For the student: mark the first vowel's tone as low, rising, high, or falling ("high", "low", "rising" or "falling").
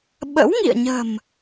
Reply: rising